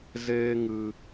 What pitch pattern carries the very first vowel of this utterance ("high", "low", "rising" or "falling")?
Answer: high